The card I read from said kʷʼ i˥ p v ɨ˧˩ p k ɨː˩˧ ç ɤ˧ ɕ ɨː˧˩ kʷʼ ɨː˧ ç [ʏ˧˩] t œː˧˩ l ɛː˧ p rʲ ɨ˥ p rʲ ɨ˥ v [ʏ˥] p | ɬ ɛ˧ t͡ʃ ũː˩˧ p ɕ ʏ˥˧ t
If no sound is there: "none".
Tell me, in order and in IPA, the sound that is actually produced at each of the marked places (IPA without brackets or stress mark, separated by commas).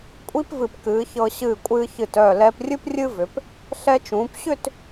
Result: ɨ˧˩, ʏ˩˧